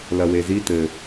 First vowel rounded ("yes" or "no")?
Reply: no